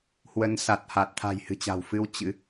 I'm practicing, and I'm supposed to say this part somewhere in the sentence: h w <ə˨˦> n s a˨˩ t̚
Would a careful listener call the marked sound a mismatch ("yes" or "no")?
no